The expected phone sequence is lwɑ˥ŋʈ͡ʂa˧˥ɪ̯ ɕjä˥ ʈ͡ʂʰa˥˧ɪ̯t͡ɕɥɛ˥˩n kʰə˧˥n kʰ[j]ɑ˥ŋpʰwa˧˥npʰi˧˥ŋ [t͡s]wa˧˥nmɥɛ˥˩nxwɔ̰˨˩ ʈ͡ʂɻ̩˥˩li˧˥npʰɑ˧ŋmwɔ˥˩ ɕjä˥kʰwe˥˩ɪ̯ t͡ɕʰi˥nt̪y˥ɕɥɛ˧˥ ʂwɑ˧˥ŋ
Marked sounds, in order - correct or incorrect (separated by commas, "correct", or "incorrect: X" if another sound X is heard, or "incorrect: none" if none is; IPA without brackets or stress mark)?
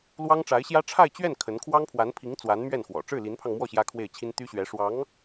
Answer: incorrect: w, correct